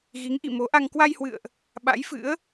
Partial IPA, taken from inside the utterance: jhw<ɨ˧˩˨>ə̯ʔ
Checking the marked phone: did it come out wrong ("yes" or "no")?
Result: yes